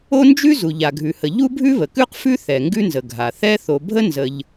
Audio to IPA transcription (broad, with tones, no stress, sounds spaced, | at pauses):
o˥ n d͡ʒ ʉ˥ z u˩ ʎ a˩ ɡʱ ʉ˩ h ə˩ ʎ u˥ bʱ ʉ˥ β ə˩ k ʉ˥ q f ʉ˥ θ ɛ˩ ŋ ɡ ʉ˥ n z ə˩ ɡʱ a˩ θ ɛ˥ θ o˩ bʱ ə˥ n z ə˩ ʎ